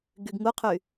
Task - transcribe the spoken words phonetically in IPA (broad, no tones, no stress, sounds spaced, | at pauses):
ɡ y ɡ ŋ u qʰ y